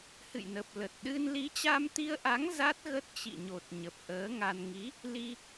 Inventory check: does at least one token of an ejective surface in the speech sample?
no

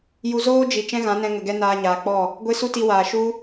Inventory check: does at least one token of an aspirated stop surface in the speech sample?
no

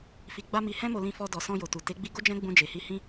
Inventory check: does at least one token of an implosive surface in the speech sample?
no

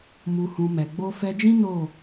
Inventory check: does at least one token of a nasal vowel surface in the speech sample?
yes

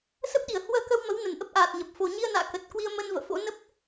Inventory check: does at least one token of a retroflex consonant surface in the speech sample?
no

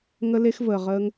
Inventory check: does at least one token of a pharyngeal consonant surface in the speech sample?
no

